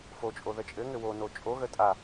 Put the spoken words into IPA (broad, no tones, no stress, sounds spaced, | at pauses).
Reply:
f o t͡ʃʼ o ð ə t͡ʃʼ ɘ ŋ ɘ w o n o t͡ʃʼ o ɣ ə tʼ a